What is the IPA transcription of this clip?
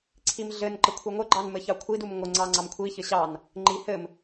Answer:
ǀʰ i m ɮ ɘ n ǃ ə kʷʰ i ŋʷ ɘ ɡ͡ǃ ɑ n m ɘ ç ɑ kʷʰ i d u m ŋʷ ə ŋ͡ǀ ɑ ŋ͡ǀ ɑ m kʷʰ i ç ɘ ɕ ɑ n | ŋ͡ǃ i h ɘ m

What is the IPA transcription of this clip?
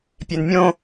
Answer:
pʲ e n mʲ õ

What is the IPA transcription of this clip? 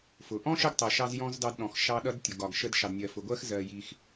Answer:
f ʊ˩ ʔ ɔ̃˥ ʃ ə˦ ɡ tˤ ɜ˩ ʃ ɑ˦ z j ɔ̃˥ z d ɑ˦ d ɗ ɔ̃˩ x ʃ ɑ˦ ɗ ʌ˥ d tʲ ʊ˩ ɡ ɒ˩ ɡ ʃ ə˦ d ʃ ɑ˩ d nʲ ɜ˩ f ʊ˩ ɡʷ ɜ˥ x z ɜ˨ j i˨ x

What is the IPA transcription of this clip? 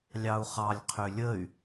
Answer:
lʲ ɑ u̯ χ ɑ lʲ qʰ ʏ lʲ ə y̯

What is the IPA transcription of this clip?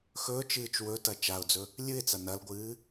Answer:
x ɵː t͡ʃ ɨː t͡ʃ w ɵ t ɐ t͡ʃ a ʊ̯ d͡z ɵ | lʲ ɨ ɪ̯ t͡s ɐ n ɐ l ɡʷ ɨː

